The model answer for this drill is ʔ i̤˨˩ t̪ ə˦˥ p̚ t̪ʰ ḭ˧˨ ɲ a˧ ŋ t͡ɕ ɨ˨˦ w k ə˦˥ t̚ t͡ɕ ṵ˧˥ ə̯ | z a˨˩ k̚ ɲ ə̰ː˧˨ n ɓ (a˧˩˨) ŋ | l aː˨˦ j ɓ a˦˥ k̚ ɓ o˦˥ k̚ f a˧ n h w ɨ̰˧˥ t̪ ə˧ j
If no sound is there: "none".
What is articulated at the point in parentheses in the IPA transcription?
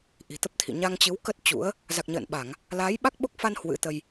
a˧˩˨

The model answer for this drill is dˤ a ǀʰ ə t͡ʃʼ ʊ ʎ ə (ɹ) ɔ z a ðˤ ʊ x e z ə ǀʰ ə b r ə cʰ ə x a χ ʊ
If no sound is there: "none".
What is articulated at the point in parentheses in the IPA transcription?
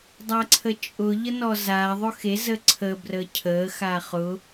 n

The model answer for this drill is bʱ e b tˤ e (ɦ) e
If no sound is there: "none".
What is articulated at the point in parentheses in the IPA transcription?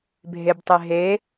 ɦ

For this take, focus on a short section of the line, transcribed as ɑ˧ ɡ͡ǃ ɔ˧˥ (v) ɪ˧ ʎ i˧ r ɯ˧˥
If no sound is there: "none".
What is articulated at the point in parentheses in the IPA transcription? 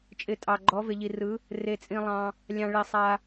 v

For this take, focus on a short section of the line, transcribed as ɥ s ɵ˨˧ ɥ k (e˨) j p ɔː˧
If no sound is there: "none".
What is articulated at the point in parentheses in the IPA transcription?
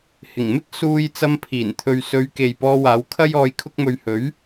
e˨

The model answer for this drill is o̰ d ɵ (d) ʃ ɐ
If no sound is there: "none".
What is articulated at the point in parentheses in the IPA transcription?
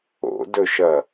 none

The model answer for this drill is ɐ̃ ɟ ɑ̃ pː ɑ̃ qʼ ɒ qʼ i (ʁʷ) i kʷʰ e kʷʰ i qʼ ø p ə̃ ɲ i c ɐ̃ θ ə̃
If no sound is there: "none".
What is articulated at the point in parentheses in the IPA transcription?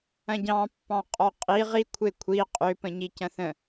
ʁ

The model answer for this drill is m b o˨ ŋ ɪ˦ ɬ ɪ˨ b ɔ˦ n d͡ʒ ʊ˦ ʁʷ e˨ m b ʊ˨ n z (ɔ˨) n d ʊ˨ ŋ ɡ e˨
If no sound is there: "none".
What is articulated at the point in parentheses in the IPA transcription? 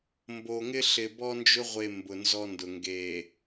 ɔ˦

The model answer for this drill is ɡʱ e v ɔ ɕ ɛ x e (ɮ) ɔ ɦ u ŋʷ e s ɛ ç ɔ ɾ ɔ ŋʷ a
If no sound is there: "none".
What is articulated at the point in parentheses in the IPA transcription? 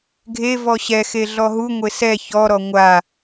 ɮ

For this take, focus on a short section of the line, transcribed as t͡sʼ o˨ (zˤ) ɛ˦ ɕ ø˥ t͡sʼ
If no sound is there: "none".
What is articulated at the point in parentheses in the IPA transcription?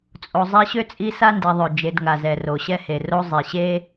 zˤ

